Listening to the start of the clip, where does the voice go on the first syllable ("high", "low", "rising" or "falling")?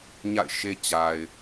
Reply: falling